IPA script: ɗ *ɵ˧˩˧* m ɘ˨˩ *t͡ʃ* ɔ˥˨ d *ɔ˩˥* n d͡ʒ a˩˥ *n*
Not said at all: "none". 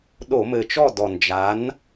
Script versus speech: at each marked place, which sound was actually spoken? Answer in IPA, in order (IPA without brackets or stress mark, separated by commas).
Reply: o˧˩˧, t͡ʃ, ɔ˨˩, n